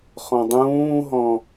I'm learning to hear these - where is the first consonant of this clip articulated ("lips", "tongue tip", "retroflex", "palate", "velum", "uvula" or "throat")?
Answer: uvula